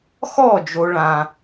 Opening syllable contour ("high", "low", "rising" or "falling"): falling